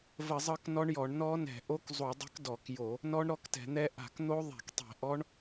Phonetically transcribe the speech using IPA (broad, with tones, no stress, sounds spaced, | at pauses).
v ə˧˩˧ zˤ ɤ˦˥ k n ɔ˦˥ ɳ j ɔ˧˩˧ ɳ n ɔ˦˥ n ɛ̤˧˩˧ ʔ o˦˥ k zˤ u˧˩˧ dˤ ə̤˦˥ k d ɔ˧˩˧ k j o˧˩˧ | n ɔ˦˥ ɳ ɾ ɔ˦˥ k t ɛ̤˧˩˧ n̪ ɛ˦˥ ʔ a̤˧˩˧ k n̪ o˦˥ ðˤ ɛ̤˧˩˧ k tˤ ɛ̤˧˩˧ ʔ ɔ˦˥ ɳ